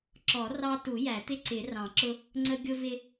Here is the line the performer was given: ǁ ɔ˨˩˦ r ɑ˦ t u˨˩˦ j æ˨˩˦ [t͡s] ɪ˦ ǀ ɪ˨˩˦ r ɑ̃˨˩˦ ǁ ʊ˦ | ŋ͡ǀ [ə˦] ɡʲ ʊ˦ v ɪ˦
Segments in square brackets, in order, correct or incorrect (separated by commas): incorrect, correct